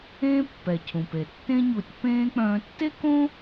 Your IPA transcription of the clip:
ẽː˦pːɛ˩ cʰũ˩pe˩ tːẽ˦ɲu˨tʲ pẽː˥k͡pœ̃ː˦ tːe˥kõ˥

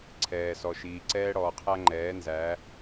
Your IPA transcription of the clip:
ǀʰɛː˨sɔ˨ʃiː˨ ǀɛː˦ɽɔː˨qʰæ˦ŋ͡ǃɛː˨˦ nzæ˨˦

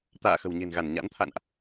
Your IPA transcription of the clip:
t̪a̰ː˧˨ xə̤˨˩wɲe̤˨˩nɣa˧˩n ɲa̰˧˥nt̪ʰa̰˧˨nʔ

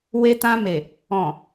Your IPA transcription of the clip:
we˧tã˧me˨ | ɔ̃˨

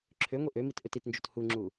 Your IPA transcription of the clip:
ǁʰøŋʷi ʔømit ʔøtitnd͡ʒot huŋ͡ǁu

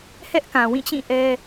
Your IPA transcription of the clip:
hɛ˦ʔkã˨wĩ˦˨t͡ɕĩ˦˨ ʔɛ˦

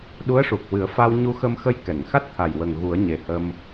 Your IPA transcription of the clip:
ɗu˧˥ə̯ʂu˨˩k̚wɨ˨˩˦ə̯ fa˧wɲu˧xə˧mxə˧j kɛ˨˩˨ŋxa˦˥t̚t̪ʰa˨˩jwə˨˩ŋ ɣu˨˩˦ə̯ɲe˨˩hə˧m

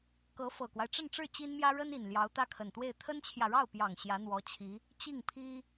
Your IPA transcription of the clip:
kɤ˧˥ fɤ˨˩kwa˦ɪ̯ʈ͡ʂə˥˧nʈ͡ʂɻ̩˥˩ t͡ɕi˥nmjä˥ ɻə˥ni˨˩n ljɑ˧˥ʊ̯t̪ä˥˩kʰə˨˩nt̪we˥˩ɪ̯ t̪ʰə˥nt͡ɕʰjä˨ɻɑ˥˩ʊ̯pjɑ˨˩ŋ ɕjä˧˥n̪wɔ˧˥t͡ɕʰi˧˥ | t͡ɕi˥˩ŋpʰi˥

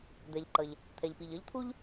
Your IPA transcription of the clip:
d̪ɛ˩ʎǃʌ˩ʎ | t̪ʰɛ˩ʎpi˩ʎʌ˥ʎ t̪ʰu˥ʎ

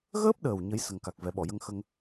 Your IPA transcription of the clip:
ɣəː˦˥p̚ɗəː˨˩w ɲə˧˥j sə˨˩ŋka˨˩k̚ vɛ˨˩˦ɓɔ˨˩˨jə˧ŋxə˧ŋ

